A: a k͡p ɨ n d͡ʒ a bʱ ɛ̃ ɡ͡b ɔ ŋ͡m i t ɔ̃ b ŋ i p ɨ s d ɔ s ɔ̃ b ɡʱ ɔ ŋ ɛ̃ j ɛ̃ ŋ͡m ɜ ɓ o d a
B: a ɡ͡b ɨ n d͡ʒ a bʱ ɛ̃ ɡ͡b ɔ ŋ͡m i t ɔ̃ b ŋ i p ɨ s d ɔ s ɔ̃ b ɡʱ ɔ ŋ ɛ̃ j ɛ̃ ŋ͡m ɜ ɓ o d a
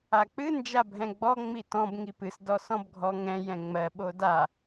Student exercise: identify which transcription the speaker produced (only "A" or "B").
A